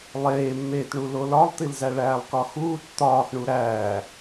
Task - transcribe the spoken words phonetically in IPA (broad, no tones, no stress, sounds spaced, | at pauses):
lˠ eː mː eː t ɳ u l o l ɒ lˠ t̪ i l z æ ɭ æː lˠ k ɒ x uː t t̪ ɒː x ɳ u ɾ æː